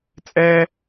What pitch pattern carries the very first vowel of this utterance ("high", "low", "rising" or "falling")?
high